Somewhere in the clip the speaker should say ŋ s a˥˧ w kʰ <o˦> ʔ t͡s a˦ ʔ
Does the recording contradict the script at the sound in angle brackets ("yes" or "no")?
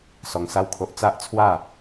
no